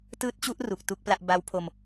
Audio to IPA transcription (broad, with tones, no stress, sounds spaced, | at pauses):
t ɯː˦˥ t̚ t͡ɕ u˦˥ ʔ r u˨˩ k̚ t u˥˩ k̚ p l a˥˩ ʔ b a˦˥ w pʰ o˧ m